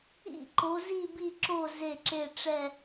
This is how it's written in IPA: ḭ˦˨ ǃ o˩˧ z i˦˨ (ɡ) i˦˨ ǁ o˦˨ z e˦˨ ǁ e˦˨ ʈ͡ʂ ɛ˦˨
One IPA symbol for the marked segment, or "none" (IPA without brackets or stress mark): b